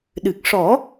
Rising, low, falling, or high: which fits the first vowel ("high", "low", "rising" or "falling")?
low